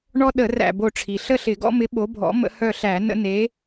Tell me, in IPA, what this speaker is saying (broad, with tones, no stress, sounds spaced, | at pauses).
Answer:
ɳ ɔ˦ ɗ ə˧˩˧ r æ̰˥˨ b o˥˨ ʈ͡ʂʰ i˩ ɬ ə˥˨ ɬ ɪ˧˩˧ ɡ ɔ̰˦ m ɪ˨˥ ɓ o˨˥ bʱ ɔ̰˨˥ m ə̰˦ h œ˥˨ ɬ æ˧˩˧ n ə̰˦ n e˨˥